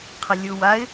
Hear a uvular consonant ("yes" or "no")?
yes